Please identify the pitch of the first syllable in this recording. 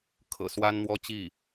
low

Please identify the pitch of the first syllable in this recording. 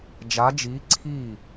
rising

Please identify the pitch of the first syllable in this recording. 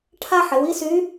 high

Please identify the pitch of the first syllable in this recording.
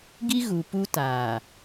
high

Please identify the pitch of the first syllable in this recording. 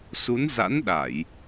rising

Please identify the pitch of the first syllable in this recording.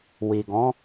low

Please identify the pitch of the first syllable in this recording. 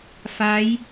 rising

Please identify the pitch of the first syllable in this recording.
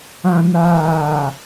high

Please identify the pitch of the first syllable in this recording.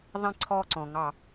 falling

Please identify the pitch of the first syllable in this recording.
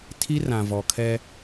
high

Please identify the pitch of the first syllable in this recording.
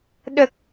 low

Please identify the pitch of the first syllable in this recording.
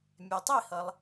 low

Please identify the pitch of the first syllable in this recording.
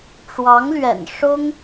rising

